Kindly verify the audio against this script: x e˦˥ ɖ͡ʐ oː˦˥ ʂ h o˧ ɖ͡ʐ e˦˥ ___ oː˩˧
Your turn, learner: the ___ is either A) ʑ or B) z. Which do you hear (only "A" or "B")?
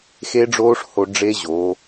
A